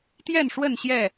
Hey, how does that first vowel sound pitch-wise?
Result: falling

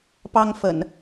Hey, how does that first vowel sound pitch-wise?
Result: high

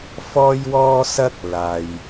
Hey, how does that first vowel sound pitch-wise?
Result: high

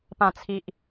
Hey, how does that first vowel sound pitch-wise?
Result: low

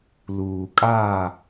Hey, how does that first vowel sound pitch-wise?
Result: low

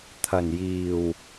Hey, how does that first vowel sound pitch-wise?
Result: low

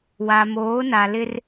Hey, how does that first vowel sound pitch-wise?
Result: low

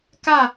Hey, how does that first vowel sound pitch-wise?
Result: falling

